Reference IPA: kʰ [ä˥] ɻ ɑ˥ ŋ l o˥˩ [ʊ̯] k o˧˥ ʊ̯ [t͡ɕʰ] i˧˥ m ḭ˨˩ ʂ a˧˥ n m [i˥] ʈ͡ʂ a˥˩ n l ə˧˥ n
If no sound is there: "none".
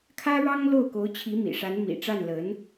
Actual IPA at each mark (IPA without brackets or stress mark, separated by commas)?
ä˥, ʊ̯, t͡ɕʰ, ḭ˨˩